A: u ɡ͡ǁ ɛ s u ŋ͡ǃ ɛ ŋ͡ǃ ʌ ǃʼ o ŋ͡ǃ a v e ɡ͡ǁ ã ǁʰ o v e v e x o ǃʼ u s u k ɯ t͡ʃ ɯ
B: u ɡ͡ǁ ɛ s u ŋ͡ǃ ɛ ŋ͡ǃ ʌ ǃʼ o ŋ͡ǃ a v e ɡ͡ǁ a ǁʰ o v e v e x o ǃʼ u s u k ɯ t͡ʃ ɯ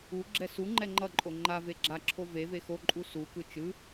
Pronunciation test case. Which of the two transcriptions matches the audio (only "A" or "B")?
B